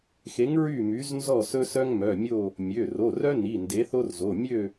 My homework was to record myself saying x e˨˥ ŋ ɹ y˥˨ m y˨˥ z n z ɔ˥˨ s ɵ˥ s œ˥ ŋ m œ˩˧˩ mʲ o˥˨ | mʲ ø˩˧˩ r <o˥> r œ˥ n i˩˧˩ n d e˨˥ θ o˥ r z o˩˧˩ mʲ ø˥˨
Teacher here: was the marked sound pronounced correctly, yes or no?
no